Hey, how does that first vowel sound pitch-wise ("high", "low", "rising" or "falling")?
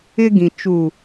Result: high